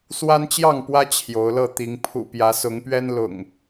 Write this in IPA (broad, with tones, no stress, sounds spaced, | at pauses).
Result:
s w a˦ n t͡ɕ j ɑ˥˨ ŋ p w ä˦ t͡ɕʰ j o˨˦ ʊ̯ l ɤ˥˨ t̪ i˨˦ ŋ pʰ ṵ˨˩ p j ä˨˦ s ʊ˨˦ ŋ p ɥ ɛ˦ n l ʊ̰˨˩ ŋ